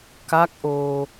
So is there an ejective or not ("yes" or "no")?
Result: no